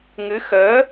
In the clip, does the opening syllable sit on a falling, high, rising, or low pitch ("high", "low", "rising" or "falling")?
rising